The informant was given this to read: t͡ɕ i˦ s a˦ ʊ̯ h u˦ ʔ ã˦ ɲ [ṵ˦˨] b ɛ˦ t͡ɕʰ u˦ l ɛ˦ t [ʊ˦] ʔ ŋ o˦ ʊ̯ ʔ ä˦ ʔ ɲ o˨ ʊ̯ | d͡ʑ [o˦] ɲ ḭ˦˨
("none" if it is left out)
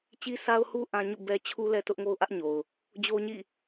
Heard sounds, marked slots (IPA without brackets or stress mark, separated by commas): ṵ˦˨, ʊ˦, o˦